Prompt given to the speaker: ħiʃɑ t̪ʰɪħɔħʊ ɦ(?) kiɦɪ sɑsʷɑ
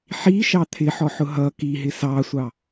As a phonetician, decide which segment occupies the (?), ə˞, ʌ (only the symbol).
ʌ